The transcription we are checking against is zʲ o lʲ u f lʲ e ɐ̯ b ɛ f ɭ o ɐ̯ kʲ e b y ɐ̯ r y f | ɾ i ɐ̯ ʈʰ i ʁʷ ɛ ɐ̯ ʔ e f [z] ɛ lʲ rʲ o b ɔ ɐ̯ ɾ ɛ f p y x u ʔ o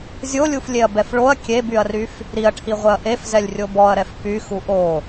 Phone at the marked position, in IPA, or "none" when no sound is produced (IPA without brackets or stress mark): z